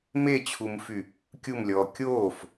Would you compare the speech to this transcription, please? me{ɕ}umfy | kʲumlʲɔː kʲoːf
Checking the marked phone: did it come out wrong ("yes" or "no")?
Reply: yes